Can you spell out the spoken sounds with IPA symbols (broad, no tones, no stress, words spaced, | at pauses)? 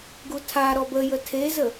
ɡutʰaɾɔb əjə tʰezə